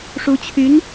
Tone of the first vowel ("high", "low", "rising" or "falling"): rising